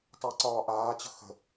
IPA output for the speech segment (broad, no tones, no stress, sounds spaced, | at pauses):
tˤ əː ǀ ɒː ʔ aː t͡ɕ ə̤ x ə̤